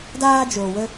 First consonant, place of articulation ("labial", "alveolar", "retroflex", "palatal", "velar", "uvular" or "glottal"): alveolar